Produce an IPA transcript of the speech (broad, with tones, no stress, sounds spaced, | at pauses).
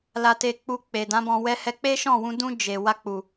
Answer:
l a˧ t e˧ k͡p u˧ k͡p e˨ d ã˨˦ b ɔ̃˧ w ɛ˧ h ɛ˧ k͡p e˦ ʃ ɔ̃˦˨ w ũ˧ d ũ˧ d͡ʒ e˨ w a˧ k͡p u˨